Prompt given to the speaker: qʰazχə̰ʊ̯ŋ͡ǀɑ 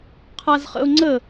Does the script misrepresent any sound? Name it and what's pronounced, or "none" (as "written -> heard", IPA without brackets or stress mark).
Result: ɑ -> ə